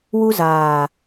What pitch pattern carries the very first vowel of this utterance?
high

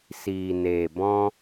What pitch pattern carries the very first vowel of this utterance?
low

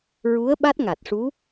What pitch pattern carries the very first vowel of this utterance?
rising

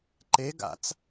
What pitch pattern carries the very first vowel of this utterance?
rising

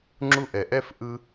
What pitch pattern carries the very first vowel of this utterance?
high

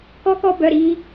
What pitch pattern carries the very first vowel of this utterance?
high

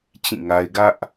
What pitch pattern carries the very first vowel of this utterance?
falling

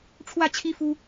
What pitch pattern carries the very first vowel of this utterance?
falling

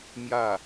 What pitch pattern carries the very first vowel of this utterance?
falling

